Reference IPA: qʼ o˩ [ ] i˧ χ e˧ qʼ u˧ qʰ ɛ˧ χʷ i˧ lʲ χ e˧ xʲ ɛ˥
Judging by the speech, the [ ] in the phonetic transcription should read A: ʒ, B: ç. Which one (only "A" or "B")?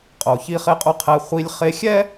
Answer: B